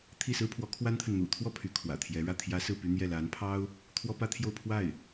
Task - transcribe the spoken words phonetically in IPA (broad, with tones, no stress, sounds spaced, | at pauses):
t̪ʰ i˥˩ s ɹ̩˥ pʰ w ɔ˧˥ kʰ w a˥ n t̪ʰ ə˨ n n̪ ṵ˨˩ t̪ʰ w ɔ˥˩ pʰ y˧˥ kʰ w ä̰˨˩ t̪ʰ j ɛ˧˥ ɻ ä˥˩ t̪ʰ j ä˧˥ s ɹ̩˥˩ p y˥ n̪ j ɛ˥˩ l a˧˥ n pʰ ɑ˥ ʊ̯ | t̪ʰ w ɔ˥ p ä˥ t̪ʰ j o˥˧ ʊ̯ pʰ w a˥˩ ɪ̯